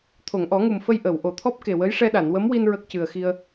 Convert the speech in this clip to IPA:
t̪ʰo˨˩˨ŋʔɔ˨˩˦ŋu˨˩mfə˧j ʔə˨˩˨w ʔo˨˩˨t̪ʰɔ˦˥p̚ke˨˩wə˧˥j ʂɛ˧ɗa˨˩˨nwə˧˥mwi˧n ɹə˦˥k̚cɨ˨˩ə̯xi˧ə̯

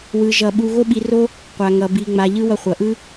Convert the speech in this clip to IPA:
wɯ˧ʒʌ˧ ɓu˧ɣo˦ɓi˧ro˦ | qʷa˧ŋʌ˧ bi˧ŋ͡ma˧ ʎɯ˦ wʌ˧χʷʌ˨ʔɯ˦

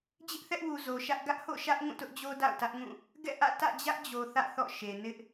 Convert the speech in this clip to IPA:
d͡ʑɪ˦ʔθɛ˦ʔwu˨ zo˨ʃä˦ʔ ɡä˦ʔho̰˦˨ʃä˦ʔ ŋũ˦˨tʊ˦ʔd͡ʑo˦ da̰˦˨ʊ̯tä˦ʔŋũ˦˨ | ɡɛ̰˦˨ʔä̰˦˨ tä̰˦˨d͡ʑä˦ʔd͡ʑo˨ θä̰˦˨θɔ̰˦˨ʃe˨ nɪ˦ʔ

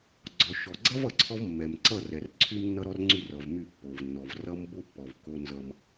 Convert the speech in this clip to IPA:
ɡ͡ǀɔ˨ʃɔ˨ɡ͡ǀʌ˦v ʌ˨ǀʰɔ˦v mːɛ˨mǀʌ˦˨rɛ˨r ǀʰy˦mnːʌ˦ɾɔ˦rŋ͡ǀy˦˨r ʌ˨vmy˦˨pːo˨vnːɔ˨v rʌ˦mbo˦ pːɔ˨v ko˦nzʌ˦m

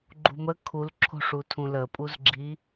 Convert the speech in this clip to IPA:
ɡ͡ǃṳmə kʰulǁʰo̤ʂutʰũ ləpʼuzɡ͡ǁi

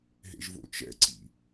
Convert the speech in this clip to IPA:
ɦḛʒvo̰t͡ʃɛ̰ǀḭ

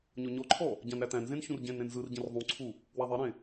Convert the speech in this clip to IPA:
ɲɔɲɔǃʰɔ | ɟãnɾætæ̃nzẽn çũrɟẽnɾẽn zɯrɟẽr ðˤũǀʰu | waðˤeɾẽ

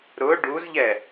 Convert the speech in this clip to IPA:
ɾʊ ɖuzʎɛ

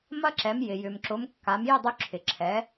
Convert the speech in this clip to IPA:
mɐ˥ǁɛ˩˥mjɪ˩ jʏ˩mǁʊ˩˥mkːa˩˥m jʏ˥˩dˤy˧ ǁʰɪ˩ǁʰɛ˩˥

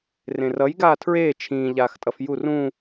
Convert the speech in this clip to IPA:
rẽrʌj ɡaːtʰɹeː t͡ʃʰĩː ʎaːxtʼʌfjur ũ

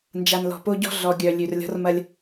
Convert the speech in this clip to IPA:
nd͡ʒa˨nlɔ̤˨po˦ɟɔ̤˦ ɮɔ˨ɡʲœ˨ lʲʉ˨rlʲɔ̤˦rmɐ˦lʲ

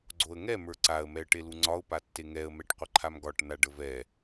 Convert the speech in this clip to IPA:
ɡ͡ǀoə̯ŋɛ mə˞ǀaə̯ mɛə̯ʈeluŋ͡ǀɒʊ̯ patːeŋɛə̯ mɛʈqʷəǃʰamɡɒʈ naɖəvɛ

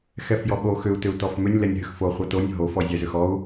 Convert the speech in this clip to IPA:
xɛfjɔɓo xʏu̯tʏu̯ tɔfmʏnʲ lɛnʲɦʏxfo χʷɛtonʲ ɦofɔ zʲɛzʏxɔu̯

